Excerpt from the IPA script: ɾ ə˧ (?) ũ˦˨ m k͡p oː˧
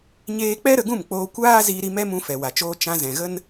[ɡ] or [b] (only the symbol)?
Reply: ɡ